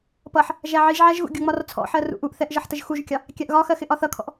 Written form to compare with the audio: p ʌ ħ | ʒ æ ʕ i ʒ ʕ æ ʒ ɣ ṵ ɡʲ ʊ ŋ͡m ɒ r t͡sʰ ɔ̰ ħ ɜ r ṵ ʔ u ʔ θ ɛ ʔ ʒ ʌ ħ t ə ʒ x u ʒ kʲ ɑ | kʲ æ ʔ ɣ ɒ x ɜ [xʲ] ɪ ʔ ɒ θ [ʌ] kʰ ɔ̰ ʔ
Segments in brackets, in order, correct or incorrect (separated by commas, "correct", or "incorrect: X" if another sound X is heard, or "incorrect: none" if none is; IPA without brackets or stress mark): incorrect: x, correct